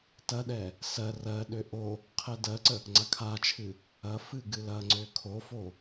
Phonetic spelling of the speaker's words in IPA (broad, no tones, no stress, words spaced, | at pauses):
tɐɗɛ | sɜ rɜɗø ʔo | qʰɛdɜǀə | ŋ͡ǀakʰat͡ʃʰɨ | ɐ fɨɡɨlɐŋ͡ǀø kʰofo